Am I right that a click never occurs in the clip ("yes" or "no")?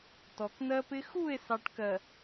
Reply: yes